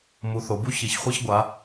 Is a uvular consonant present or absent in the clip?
present